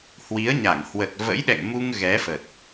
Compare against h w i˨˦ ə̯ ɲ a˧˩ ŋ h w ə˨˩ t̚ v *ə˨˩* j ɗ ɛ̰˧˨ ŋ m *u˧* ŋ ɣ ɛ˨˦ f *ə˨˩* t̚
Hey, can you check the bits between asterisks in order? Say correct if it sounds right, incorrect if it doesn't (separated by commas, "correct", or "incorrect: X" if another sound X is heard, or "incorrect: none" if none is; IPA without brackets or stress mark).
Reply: incorrect: ə̰˧˥, correct, correct